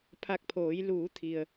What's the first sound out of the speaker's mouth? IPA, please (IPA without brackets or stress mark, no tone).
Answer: pʰ